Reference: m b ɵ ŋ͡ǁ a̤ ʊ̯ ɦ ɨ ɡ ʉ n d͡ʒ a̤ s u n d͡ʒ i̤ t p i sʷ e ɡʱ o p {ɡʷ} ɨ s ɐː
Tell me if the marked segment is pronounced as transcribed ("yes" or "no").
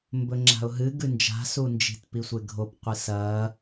no